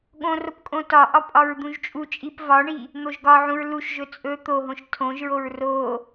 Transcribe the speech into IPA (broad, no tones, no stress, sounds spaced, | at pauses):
ɠ õ r o p kʼ õ t ɒ ʔ ɒ pʼ ɒ ɹ d̪ ũ ʒ t͡ʃʼ u t͡ʃʼ i p v ɒ ɳ i | n̪ o ʒ ɡ ɒ ʕ ũ ɹ l u ʃ ʒ ɵ t͡sʼ ɵ t̪ o ɦ õ ʃ tʰ õ ʒ ɹ o ɹ r o